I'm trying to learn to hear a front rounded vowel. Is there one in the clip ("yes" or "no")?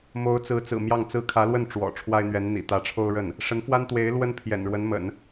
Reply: no